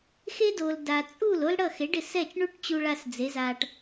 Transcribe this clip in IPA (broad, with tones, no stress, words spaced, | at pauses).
xe˥do˩l da˩t͡sʼu˥˩l o˥lɽʌ˥˩ xe˩˥ɖɪ˩sɛ˥˩t͡ʃ ɳu˥ʈ t͡ɕu˧ɭa˧s d͡ze˩˥za˧ʈ